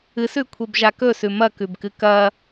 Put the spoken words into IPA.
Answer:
ɨ s ʉ kʷʰ e b ʒ a k ɵ s ʉ m ɐ k ʉ b k ɨ k ɐ

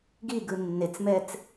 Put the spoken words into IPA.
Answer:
ɡ i ɡ ɯ nː e t͡s m ɛ t͡s

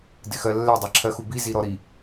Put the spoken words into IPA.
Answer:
d ɪ x ɜ lː ɛ dˤ ɛ ǁʰ ɜ x u b i z i ɾ ɔ ɾ i

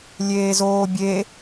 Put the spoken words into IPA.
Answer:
lʲ eː z oː bʲ e

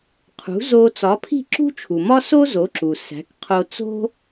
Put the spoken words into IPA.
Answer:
qʰ ṳ˩˥ z o˧ t͡s ɒ˩˥ pʰ i̤˥˩ ǁ ṳ˥ t͡ʃʰ u˩ m ɒ˥ s o˥ z o˩˥ ǁ u˩ s æ̤˩˥ k qʰ o˧ t͡s o̤˥

